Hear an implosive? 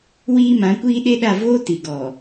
yes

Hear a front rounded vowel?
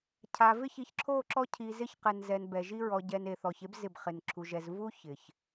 no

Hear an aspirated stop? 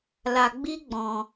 no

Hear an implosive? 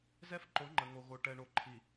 no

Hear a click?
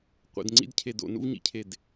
yes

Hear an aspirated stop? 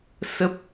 no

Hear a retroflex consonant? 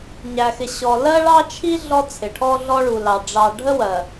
yes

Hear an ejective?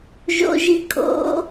yes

